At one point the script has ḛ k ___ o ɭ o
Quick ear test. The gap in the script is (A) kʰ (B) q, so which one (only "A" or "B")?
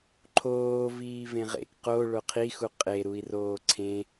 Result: B